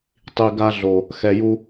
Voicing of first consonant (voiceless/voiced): voiceless